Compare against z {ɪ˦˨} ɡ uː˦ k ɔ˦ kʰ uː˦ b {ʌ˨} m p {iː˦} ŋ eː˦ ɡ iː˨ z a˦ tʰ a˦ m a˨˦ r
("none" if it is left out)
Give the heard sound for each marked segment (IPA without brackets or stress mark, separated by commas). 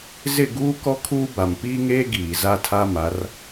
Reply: ɪ˦˨, a˨, iː˦